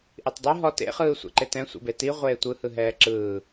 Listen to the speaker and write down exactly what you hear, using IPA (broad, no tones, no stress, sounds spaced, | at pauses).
ʔ i tˤ dˤ e ɦ ɔ t ḛ χ ɯː sʷ ḛ ǃ e t ɛ̃ sʷ ḛ b e t i ʁʷ eː tʷ ɯ h ɯ ɦ ɛː ǁ ɯː